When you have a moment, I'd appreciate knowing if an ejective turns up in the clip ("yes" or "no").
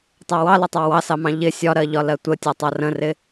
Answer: no